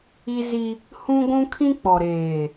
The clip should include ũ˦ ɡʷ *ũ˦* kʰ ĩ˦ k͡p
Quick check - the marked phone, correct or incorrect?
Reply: correct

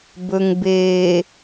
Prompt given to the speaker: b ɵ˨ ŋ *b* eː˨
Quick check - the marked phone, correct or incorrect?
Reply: correct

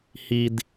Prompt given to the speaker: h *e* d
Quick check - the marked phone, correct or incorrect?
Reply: incorrect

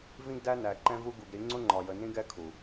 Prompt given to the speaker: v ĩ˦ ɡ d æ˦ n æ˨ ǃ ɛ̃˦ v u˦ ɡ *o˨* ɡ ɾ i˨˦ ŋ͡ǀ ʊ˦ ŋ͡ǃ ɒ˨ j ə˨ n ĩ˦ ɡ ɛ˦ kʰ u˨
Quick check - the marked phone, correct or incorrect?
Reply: incorrect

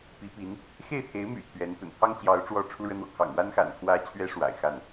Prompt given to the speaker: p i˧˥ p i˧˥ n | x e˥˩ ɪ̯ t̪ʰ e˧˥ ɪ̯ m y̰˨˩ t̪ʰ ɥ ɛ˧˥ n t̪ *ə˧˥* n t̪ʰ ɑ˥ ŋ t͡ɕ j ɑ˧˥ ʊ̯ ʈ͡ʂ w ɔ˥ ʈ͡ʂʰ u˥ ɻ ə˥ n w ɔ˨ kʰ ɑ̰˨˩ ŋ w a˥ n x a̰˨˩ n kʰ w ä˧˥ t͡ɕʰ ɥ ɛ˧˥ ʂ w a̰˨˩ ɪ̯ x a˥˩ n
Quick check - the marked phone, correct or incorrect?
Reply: incorrect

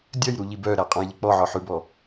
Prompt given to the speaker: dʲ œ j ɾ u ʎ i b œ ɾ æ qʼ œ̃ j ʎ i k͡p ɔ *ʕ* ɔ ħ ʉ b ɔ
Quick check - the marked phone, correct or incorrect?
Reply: correct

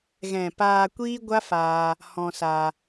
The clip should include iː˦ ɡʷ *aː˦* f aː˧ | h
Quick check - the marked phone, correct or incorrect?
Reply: incorrect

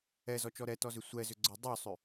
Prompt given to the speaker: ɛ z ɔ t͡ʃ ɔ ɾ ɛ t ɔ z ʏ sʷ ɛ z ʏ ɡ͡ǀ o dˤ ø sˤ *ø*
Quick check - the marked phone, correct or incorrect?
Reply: correct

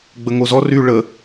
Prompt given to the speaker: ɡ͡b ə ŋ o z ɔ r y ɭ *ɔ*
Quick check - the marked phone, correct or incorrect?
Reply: incorrect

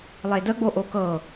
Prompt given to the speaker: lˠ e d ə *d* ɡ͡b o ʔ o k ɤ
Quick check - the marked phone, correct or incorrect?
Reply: incorrect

